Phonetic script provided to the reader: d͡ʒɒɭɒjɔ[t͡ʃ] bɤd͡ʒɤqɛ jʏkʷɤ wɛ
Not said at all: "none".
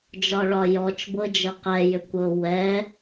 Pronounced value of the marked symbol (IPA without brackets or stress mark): t͡ʃ